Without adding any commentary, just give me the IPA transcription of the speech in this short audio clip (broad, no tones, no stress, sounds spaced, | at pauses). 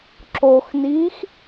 ǁ o x n iː x